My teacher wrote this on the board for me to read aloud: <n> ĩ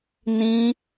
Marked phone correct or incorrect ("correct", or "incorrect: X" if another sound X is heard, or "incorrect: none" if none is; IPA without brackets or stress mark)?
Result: correct